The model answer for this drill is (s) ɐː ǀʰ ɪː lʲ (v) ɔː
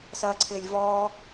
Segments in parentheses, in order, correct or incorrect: correct, correct

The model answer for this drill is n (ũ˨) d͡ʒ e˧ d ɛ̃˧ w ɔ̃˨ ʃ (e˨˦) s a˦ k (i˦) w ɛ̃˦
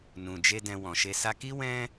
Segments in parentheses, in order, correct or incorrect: correct, incorrect: e˧, correct

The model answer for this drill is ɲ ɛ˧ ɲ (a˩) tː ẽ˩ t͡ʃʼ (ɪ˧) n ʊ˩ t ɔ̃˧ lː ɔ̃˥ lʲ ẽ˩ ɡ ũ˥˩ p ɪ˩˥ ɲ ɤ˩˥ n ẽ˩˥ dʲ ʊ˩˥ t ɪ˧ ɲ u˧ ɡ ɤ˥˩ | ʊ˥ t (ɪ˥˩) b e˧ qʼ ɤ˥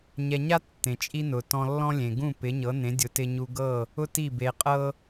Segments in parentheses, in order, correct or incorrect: incorrect: a˥, incorrect: i˧, incorrect: i˥˩

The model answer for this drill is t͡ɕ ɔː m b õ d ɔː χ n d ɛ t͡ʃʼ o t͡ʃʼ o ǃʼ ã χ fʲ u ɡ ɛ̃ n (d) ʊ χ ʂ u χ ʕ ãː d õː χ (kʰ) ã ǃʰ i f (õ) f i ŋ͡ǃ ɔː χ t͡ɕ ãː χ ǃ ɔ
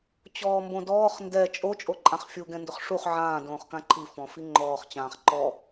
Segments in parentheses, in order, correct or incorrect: correct, incorrect: k, incorrect: ɔ̃

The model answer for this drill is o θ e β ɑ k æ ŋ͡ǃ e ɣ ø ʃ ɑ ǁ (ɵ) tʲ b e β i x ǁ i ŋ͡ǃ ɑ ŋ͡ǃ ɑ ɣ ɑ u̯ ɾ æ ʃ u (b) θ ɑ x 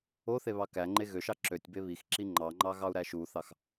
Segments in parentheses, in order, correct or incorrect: incorrect: ø, incorrect: none

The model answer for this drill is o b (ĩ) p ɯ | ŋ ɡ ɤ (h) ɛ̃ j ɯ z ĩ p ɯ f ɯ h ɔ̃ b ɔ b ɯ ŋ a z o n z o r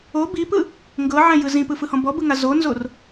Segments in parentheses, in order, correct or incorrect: incorrect: i, incorrect: ʕ

